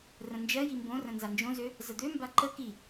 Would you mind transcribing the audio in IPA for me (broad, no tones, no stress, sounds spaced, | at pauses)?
r ə̃ n d͡ʒ ɜ j i m b õ r ə̃ n z a n d͡ʒ õ z ø | z ə d̪ ø m b a ǃ ə k i